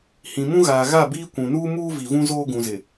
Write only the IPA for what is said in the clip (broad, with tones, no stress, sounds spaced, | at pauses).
h ĩ˨ m ũ˦ ɣ aː˨ ɣ a˦˨ b iː˦ kʷ ũ˨ n uː˦ m uː˦ v i˨ v ũ˦ z oː˦ ɡ ũ˨ z ɪ˨